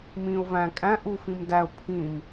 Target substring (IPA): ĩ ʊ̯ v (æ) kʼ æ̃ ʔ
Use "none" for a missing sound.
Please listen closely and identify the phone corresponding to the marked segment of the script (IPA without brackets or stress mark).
æ̃